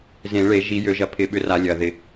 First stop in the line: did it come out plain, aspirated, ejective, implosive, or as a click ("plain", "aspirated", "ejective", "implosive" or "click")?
aspirated